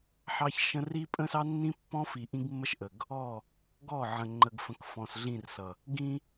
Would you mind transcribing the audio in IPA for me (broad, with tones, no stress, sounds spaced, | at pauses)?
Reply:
ħ ɑ˦ ç ʃ ə̃˦ r i˦ pʼ ə̃˦ s ɑ˦ nː ĩ˦ pː ɔ̃˦ f i˨ ʔ ĩ˦ ɡ mː ə˦ ʃ ʔ ə˨ ɡ | ɔ˦˨ | ɡ ɔ˦˨ ʕ ə̃˨ ŋ͡ǃ ə˨ ɡ f ə̃˨˦ k f ɔ̃˨ s ɮ ĩ˦˨ r s ʌ˨ | ɡ ĩ˦